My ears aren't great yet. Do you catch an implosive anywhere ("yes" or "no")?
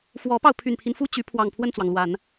no